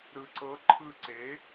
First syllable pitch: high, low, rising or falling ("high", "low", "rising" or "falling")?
low